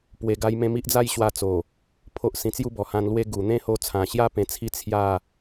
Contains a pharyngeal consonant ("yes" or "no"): no